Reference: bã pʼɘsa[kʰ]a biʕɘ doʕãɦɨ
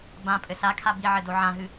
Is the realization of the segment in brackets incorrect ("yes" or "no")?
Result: no